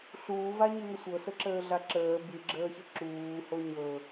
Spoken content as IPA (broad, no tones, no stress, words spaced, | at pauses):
ɬuːva ɲɨŋəsʷɤ səǁəːɮaǁəː bɨɡ͡ǁəːçə ǁuːho ɲɤ